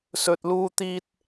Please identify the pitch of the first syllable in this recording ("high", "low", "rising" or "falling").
low